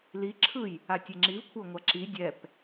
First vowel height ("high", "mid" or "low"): high